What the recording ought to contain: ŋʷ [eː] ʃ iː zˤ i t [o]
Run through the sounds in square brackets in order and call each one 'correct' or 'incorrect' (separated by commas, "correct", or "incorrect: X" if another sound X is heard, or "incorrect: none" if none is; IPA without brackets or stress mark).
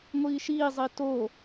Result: incorrect: iː, correct